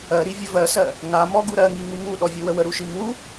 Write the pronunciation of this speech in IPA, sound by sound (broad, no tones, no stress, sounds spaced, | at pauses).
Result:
ɜ ɾ i vʲ ə v ɜ s ɜ | ŋ a m ɔ ɡ u ɾ ɜ ŋ i ŋ u ŋ u ɗ ɔ vʲ u w ə w ə ɾ u ʃ i m u